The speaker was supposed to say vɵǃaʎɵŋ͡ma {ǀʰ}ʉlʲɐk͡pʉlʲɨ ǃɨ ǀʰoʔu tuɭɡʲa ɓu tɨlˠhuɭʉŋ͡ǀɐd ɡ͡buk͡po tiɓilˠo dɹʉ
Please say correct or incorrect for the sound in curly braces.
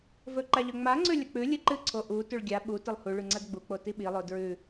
incorrect